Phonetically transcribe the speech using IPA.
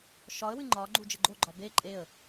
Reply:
ʃɒə̯wɨ ŋ͡ǃɒ ɡ͡ǃud͡ʒəɡ͡ǃoɡ͡ǃɒ be ǃʼeə̯

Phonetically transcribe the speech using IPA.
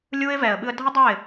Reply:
lʲu˦ɪ̯vɛː˨ə̯ɓɨ˧ə̯ dʱə˦dˤo˦˨ɪ̯

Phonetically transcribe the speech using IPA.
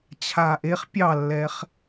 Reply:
t͡ɕʰaːʔeχ pʲɑlːɛχ

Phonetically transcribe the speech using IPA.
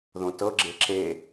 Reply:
ðõtɤɡ͡ǁe ǁe

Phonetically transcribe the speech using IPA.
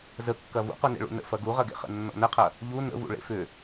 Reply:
zəkːɐ vṵqunḛ ɭṵnə̰ fɐɡuʁɐɡḛ χə̰nːɔ̰nəqʰɐ | ʎu nə̰vṵ ɭḛfʏ

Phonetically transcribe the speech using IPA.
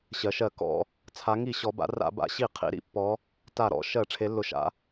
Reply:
ɕɜ˩˧ʃɜ˧˩˧ kɔ̰˧˩˧ | t͡sʰa˩˧ŋi˧˩˧ ɕɔ˩˧ba̰˩˧ra̰˧˩˧ ba̰˩˧ɕi˧˩˧ qʰḭ˩˧ɾḭ˧˩˧pːɔ˩˧ | ta˧˩˧ɾɔ̰˧˩˧ ʃɜ˧˩˧ ʈ͡ʂʰe˩˧lːʊ˩˧ʃa̰˩˧

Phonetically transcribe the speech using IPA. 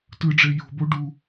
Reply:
tɯɖ͡ʐe jo̤bo ɖu

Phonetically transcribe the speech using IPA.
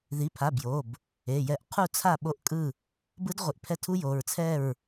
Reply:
ði˩˧˩pʰa˩˧˩ bjo˩˧˩b | e˩˧˩jɛ˦˥ʔ qʰu˥˨t͡sʰa˥˨ɓo˥˨ʔkʼɯ˥˨ | bɯ˦˥dʁʷi˩˧˩ʔpʰɛ˦˥tʰu˦˥ jo˩˧˩ɹ t͡sʰɛ˥˨ɹ

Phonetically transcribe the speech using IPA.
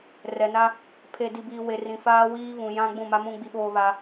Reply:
rɛ˨na˦ | pʰe˨di˨biː˨ we˨rĩ˨faː˦ wiː˦βũ˨jã˦ ɡ͡bũ˦˨ma˦mũ˦ ɡ͡bi˦ɓoː˦βa˦

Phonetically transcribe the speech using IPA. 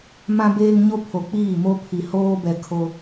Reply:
mã˦beː˦ŋɲo˦ pʰo˨k͡piː˦˨mo˦pʰi˨ hoː˦bɛ˨ kʰo˦

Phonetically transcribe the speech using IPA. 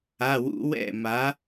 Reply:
a˧˥˧wṵ˦˥ wɛ̰˥˩ma˨˥

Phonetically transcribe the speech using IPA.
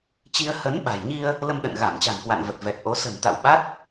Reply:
t͡ɕi˧ə̯ hə˨˦nɓa̤˨˩jɲi˧ə̯ | lə˧mɗə̰˧˨nɣa˧˩m t͡ɕa̤˨˩nkwa̰˧˨n və˨˩t̚ vɛ˨˩t̚ʔo˨˦ sə̤˨˩nt̪a̰˧˨wɓa˦˥t̚

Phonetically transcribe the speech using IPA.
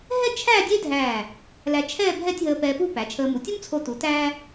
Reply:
ɦɛ˥t͡ʃʰæ˥˧ dʲe˥dʱæː˧˩ | læ˧t͡ʃʰɛː˥˧ bʱɛ˥˧tʲɦəː˧ pɛː˧pu˥˧pæ˩˧t͡ʃʰəː˧ mu˩˧tʲu˥mt͡sʰo˧tu˩˧ tæː˥

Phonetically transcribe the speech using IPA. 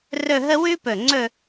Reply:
rɵ˥˧ɦə˥ wʉ˥pɵ˧˩ ŋ͡ǀɵ˥˧

